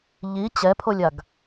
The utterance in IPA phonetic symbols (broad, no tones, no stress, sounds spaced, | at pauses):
ʎ i t͡ɕ ɛ pʰ o lʲ a ɡ